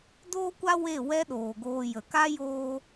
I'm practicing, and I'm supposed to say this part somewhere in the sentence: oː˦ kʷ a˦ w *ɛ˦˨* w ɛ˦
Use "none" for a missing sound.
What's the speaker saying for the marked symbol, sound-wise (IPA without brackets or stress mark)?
e˦˨